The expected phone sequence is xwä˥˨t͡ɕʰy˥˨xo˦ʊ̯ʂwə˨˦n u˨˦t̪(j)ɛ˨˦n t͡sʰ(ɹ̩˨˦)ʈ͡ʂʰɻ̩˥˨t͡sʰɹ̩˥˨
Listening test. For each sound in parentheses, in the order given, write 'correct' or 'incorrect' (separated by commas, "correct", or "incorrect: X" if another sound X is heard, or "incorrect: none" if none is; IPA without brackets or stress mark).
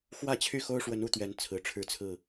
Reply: incorrect: ɥ, incorrect: ɹ̩˨˩